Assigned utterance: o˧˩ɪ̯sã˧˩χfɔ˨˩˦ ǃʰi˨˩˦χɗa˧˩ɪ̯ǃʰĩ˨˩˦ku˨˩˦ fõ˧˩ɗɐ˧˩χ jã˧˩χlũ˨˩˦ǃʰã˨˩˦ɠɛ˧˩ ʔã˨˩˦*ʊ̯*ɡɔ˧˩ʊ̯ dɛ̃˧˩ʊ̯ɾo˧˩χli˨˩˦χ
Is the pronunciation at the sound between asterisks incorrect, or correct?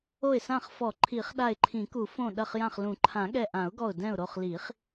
correct